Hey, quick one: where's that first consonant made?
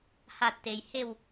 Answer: throat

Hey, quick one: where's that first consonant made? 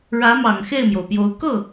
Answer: retroflex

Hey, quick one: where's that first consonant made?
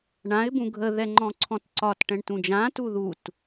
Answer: retroflex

